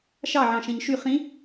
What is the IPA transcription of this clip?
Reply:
ʃɑ ʕɑ̃ʃẽɲʃy χĩ

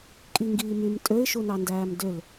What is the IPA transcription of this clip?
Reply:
kʼiŋɡiːmym tʼøɪ̯ʃunɑ ndæːmdøl

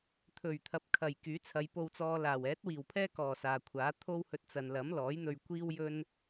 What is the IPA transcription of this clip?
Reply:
t̪ʰɵ˨˩ɥt̪ʰɐ˨p̚ kʰɐ˨˩j kyː˨˥t͡sʰɐ˨˧j po˧wt͡sɔː˧laː˨˩w ɛː˨˥t̚wiː˨˩wpʰɛː˥ kɔː˨˩ saː˨kʷʰaː˨˥ t̪ʰo˥whɵ˧t̚ t͡sɐ˨nlɐ˨˥mlɔː˨˥jn̪ɵ˧ɥ kʷiː˥wjɵ˥n

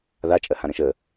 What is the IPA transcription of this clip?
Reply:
ða t͡ʃʼɜhãɾə̃ʃə

